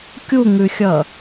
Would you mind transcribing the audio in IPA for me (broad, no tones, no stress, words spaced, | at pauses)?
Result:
kʲuŋʉxʲʌ